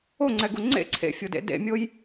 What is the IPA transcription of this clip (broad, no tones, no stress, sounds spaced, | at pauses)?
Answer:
o ŋ͡ǀ ɛ ɡ u ŋ͡ǀ ḛ ǀʰ ḛ fʲ o d ḛ d ḛ mʲ o j